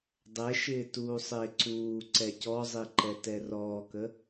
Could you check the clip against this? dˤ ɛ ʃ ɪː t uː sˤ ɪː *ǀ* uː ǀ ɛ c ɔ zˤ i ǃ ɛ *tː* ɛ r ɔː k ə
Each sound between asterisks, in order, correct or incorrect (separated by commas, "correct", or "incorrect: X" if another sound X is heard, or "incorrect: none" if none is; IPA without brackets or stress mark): correct, incorrect: t